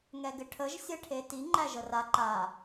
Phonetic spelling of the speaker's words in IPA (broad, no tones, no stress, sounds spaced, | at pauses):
ŋ ɛ ɡ ɪ ʈʰ ə ʒ sʲ ɛ ʈʰ e t i ŋ͡ǃ æ ʒ ə r a ǃ a